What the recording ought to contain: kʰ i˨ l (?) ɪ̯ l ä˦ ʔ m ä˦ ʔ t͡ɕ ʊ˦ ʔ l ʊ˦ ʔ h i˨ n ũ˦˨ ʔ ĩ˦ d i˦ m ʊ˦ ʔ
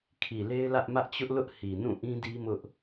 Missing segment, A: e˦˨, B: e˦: B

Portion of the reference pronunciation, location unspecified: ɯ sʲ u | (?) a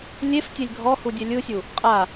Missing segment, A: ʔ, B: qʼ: B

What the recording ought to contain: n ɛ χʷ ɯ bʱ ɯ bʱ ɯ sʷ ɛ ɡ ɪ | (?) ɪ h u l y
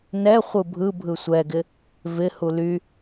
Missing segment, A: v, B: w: A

